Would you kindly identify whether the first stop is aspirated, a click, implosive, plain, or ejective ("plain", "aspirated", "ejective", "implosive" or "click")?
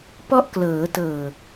plain